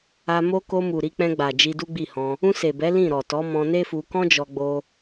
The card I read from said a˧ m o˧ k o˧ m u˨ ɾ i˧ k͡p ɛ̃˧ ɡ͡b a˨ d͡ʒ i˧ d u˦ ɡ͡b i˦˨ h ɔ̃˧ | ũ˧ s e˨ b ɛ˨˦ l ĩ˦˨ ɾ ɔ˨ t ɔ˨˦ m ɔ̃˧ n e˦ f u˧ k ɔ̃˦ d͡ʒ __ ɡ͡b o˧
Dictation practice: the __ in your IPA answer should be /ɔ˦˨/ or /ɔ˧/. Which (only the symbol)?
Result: ɔ˧